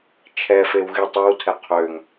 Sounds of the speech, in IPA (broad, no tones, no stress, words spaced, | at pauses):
t͡ʃʰɛfew ɣitˤewtʰɛ qʰøŋ